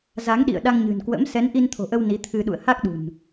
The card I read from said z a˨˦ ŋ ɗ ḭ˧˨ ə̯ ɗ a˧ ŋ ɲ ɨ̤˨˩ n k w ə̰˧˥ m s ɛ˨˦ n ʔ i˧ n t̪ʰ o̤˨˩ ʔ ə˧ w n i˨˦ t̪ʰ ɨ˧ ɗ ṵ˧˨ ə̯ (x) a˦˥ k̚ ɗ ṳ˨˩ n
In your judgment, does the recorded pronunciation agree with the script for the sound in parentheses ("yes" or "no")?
no